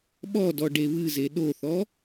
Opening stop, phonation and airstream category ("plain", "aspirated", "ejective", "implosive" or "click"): implosive